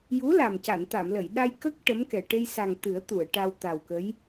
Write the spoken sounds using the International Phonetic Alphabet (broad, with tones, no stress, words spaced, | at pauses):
ju˧˥la˨˩m ca˨˩˨nt̪a˨˩˨mlə˨˩˨j ɗa˧j kə˦˥k̚ ʈə˧˥mkɛ˨˩ ʈe˧jsa˨˩ŋ t̪ɨ˨˩˦ə̯t̪u˨˩˨ə̯ ʈa˧w t̪a˨˩wkə˧˥j